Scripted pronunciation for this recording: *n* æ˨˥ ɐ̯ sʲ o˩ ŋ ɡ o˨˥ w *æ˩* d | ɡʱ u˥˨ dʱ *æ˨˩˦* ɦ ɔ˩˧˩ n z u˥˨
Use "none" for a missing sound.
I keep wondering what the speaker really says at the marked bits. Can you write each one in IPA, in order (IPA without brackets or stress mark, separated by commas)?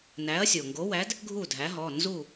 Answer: n, æ˨˥, æ˨˥